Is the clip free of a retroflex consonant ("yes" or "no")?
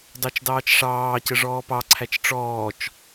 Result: no